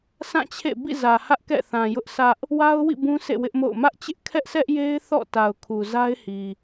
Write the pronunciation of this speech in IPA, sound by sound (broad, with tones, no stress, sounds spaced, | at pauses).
sʰ ã˦˨ t͡ɕʰ ḛ˦˨ b ḭ˦˨ z ä˨ h ä˦ ʔ k ɛ̰˦˨ θ ã˨ j ʊ˦ ʔ s ä˦ ʔ | w a˦ ʊ̯ w ḭ˦˨ b ũ˦ sʰ ḛ˦˨ w ɪ˦ ʔ m o̰˦˨ ʊ̯ m ä˦ ʔ t͡ɕ ɪ˦ ʔ kʰ ɛ˦ ʔ s ɛ˦ ʔ j e˦ ɪ̯ θ ɔ̰˦˨ t a˨ ʊ̯ kʰ u˨ z a˦ ɪ̯ h i˨